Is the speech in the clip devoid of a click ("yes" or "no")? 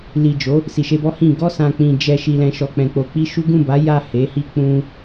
yes